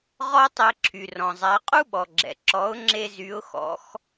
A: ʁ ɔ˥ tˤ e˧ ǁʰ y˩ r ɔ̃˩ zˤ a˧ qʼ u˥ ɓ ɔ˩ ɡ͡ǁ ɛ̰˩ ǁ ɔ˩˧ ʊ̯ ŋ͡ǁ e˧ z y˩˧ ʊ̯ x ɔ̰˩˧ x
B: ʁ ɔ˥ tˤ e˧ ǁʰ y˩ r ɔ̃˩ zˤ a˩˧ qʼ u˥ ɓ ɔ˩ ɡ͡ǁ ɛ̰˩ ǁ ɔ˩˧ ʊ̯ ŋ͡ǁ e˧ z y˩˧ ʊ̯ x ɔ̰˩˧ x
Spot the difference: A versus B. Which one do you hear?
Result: B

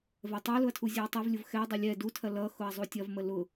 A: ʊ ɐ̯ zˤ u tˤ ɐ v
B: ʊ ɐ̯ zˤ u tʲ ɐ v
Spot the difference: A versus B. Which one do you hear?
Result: B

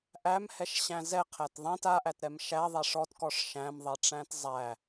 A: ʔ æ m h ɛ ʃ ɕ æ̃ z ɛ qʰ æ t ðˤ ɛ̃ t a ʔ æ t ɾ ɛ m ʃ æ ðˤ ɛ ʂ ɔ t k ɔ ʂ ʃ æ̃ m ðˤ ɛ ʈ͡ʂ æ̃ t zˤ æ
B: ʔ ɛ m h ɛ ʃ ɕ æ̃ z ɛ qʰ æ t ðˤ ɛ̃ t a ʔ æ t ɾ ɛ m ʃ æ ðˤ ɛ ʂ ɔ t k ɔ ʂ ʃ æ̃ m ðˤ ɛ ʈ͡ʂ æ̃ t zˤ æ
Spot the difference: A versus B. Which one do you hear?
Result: A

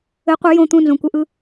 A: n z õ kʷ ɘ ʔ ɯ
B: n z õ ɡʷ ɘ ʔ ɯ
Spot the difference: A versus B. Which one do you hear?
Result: A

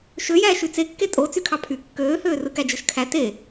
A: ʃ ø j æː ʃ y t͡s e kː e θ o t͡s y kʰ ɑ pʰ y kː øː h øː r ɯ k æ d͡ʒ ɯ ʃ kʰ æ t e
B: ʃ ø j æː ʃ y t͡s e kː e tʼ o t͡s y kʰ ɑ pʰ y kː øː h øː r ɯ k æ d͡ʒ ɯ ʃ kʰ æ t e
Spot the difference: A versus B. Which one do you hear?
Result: B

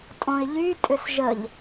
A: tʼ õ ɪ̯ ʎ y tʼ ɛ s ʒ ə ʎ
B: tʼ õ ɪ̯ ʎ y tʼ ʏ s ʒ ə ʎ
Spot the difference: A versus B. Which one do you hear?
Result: B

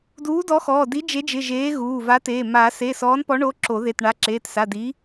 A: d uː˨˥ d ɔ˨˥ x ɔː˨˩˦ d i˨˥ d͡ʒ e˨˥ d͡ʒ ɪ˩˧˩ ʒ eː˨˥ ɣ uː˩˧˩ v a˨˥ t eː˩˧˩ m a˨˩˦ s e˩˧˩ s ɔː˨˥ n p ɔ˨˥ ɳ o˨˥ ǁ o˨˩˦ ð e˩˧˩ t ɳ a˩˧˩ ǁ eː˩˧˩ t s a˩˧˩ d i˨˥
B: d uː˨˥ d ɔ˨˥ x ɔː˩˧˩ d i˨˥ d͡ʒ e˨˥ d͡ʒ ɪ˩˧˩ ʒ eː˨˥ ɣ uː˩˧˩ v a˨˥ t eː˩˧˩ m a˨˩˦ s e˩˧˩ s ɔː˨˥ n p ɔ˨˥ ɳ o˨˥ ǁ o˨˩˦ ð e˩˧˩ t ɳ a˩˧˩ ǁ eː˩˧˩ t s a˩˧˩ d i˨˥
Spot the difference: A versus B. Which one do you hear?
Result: B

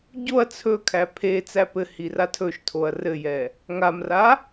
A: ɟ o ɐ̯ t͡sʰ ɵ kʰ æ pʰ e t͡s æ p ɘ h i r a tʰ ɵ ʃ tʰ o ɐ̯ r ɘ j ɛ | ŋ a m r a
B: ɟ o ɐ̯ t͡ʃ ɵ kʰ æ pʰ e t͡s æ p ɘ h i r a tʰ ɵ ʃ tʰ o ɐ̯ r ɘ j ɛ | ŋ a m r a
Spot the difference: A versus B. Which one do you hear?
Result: A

